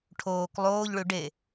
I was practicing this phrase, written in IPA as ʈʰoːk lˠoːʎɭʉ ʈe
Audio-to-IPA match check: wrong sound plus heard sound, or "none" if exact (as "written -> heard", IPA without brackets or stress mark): ʈ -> ɖ